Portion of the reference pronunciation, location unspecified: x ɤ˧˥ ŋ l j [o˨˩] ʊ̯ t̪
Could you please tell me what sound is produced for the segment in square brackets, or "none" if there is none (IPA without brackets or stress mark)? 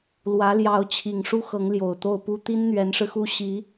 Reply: o˨˩